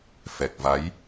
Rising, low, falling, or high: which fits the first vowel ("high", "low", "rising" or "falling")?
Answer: low